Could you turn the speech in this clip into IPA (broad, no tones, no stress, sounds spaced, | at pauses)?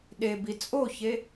ɗ e b i t͡sʼ o ç e